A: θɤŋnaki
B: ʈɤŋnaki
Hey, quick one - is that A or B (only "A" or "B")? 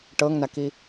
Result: B